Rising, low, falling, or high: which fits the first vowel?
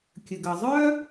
low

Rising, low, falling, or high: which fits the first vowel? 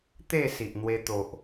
falling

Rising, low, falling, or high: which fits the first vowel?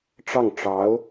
falling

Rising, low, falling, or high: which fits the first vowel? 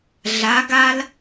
rising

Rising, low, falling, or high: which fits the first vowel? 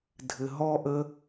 low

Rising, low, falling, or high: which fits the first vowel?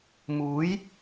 rising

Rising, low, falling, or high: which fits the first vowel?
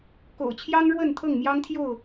low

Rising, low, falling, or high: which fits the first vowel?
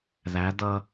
rising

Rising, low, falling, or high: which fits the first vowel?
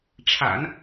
low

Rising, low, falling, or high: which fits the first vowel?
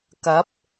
rising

